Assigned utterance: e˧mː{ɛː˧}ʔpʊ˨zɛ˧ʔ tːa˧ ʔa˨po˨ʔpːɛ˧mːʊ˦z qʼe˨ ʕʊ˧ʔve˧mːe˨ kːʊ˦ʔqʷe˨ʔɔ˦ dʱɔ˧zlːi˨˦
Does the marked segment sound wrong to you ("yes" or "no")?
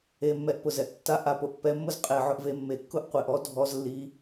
yes